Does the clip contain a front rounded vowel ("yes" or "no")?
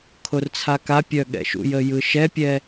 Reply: yes